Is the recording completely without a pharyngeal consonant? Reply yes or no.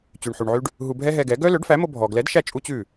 no